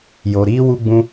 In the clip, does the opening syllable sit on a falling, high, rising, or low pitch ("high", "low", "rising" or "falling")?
low